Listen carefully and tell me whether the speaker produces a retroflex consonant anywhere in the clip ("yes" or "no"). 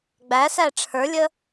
yes